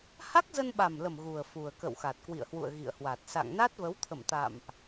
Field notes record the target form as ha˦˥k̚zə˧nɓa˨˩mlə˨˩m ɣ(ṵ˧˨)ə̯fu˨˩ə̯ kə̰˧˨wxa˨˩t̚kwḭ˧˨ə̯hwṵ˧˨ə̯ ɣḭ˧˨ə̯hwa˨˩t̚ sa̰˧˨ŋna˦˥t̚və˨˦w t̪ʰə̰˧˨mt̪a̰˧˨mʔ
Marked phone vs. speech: incorrect: u˨˩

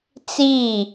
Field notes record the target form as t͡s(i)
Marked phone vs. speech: correct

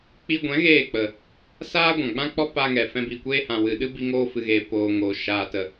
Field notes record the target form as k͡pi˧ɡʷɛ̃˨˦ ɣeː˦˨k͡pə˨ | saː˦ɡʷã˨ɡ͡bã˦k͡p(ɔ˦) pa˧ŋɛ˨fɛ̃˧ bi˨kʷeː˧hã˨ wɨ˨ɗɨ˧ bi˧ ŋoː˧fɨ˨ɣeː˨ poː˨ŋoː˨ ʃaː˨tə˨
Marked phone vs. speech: correct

